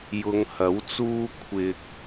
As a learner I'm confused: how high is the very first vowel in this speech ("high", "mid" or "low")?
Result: high